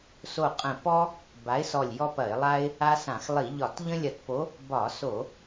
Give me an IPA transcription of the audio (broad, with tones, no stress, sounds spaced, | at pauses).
s o˧˩ qʼ ə̃˧˩ p ɔ˦ | b a˨˥ ɪ̯ s ɔ˧˩ lʲ j ɔ˦ p ɐ˧˩˧ ɪ̯ lˠ a˦ ɪ̯ | a˦ s ã˧˩˧ x lˠ i˧˩˧ ʎ ɒ˧˩˧ t ʎ ə̃˦ lʲ ɐ˧˩˧ t p o˨˥ | b ɒ˧˩˧ s o˧˩˧